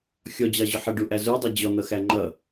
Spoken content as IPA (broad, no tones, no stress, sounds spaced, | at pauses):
xʲ ɔ d͡ʑ ɑ ʑ ʊ ħ ə ɖ u ʔ æ z u dˤ ʌ d͡ʑ ɔ n̪ ʌ x æ ŋ͡ǃ ʌ